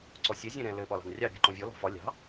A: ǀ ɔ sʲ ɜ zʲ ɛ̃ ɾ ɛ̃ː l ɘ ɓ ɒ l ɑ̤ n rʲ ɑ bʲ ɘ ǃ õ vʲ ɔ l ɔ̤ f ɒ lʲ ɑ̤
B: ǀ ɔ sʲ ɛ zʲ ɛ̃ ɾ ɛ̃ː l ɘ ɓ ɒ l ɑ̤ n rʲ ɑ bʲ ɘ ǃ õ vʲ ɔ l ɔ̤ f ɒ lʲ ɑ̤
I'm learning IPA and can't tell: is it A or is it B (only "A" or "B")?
B